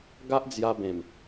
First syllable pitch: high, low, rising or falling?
high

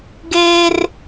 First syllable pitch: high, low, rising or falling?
high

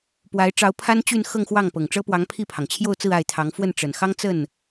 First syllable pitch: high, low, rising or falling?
rising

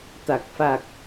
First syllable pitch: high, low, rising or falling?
low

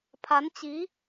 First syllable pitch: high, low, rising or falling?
rising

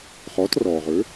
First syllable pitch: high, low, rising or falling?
rising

